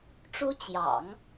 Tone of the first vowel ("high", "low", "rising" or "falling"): high